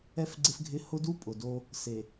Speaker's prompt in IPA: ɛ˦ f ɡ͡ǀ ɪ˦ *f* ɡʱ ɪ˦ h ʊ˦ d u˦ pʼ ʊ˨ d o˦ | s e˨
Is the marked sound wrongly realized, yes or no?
no